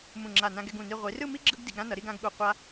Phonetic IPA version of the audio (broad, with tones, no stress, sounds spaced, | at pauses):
m ũ˧˩ ŋ͡ǁ a˧˩ n ã˧ ɡ ɛ˧ ɡ ũ˧˩ n i˧ ʁʷ i˩˧ r ɯ˥˧ m i˥ ɡ͡ǁ ɯ˥ ɡ d i˩˧ ɡ ɾ ã˥ n ʌ˩˧ ɾ i˥˧ ɡ ã˧ ɡ ɠ u˧˩ qʷ a˧